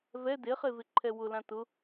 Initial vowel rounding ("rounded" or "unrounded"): unrounded